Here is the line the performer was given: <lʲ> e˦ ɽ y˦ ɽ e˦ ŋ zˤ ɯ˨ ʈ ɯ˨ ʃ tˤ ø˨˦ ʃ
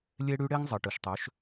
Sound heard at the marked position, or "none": lʲ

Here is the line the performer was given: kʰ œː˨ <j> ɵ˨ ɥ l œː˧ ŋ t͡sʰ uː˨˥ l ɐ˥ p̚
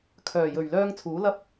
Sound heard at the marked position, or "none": j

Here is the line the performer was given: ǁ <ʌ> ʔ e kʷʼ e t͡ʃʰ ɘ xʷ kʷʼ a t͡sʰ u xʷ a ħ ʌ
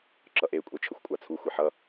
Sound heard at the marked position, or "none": ʌ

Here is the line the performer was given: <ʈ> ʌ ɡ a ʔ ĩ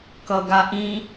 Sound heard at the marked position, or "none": k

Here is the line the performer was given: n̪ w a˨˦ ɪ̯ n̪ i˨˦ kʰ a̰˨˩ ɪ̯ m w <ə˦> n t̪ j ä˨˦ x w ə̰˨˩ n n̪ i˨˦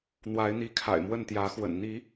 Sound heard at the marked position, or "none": ə˥˨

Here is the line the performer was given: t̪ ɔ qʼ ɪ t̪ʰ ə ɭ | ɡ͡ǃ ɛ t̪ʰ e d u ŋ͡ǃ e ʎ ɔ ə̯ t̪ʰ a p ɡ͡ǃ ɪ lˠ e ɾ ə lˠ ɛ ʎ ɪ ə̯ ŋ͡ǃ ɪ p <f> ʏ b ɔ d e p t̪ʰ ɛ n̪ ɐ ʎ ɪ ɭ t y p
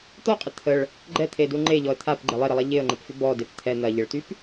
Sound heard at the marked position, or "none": f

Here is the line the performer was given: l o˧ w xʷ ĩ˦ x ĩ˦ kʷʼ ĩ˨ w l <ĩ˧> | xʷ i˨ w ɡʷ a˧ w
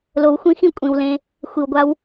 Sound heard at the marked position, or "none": ẽ˧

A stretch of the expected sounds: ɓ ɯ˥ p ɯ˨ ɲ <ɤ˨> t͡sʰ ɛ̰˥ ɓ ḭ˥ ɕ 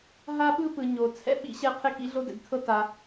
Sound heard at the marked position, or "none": o˨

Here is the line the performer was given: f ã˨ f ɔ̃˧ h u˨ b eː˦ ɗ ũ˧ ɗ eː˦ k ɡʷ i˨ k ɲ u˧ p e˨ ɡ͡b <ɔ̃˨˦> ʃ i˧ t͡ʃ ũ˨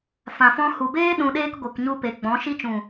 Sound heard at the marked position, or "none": ɔ̃˨˦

